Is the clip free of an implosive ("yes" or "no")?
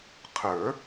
yes